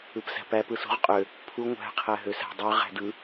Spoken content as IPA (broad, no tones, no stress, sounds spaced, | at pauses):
ɯ p s æ̤ p æ p ɯ s ṳ ʁ qʼ ø | pʰ u ŋʷ æ̤ qʰ æ ɦ ø s æ̤ dˤ ø ʁ æ̤ d ɯ